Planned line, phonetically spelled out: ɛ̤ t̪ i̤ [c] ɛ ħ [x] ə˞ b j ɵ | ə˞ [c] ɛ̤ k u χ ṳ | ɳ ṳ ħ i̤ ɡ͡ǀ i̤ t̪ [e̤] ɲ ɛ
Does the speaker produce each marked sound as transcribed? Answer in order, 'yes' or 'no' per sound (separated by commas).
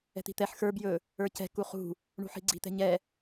no, yes, yes, no